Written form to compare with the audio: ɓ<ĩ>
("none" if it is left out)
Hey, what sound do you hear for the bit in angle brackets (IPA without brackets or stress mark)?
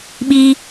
i